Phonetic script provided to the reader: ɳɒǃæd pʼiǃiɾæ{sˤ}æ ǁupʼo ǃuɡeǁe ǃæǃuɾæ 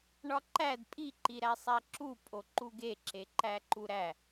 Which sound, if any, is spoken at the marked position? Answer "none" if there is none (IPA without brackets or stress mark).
sˤ